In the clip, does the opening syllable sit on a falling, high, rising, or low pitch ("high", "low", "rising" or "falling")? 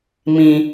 low